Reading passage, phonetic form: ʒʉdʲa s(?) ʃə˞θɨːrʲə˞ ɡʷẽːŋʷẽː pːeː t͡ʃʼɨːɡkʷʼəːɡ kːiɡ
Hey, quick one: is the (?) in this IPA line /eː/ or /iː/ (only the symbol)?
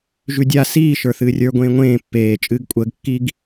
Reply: iː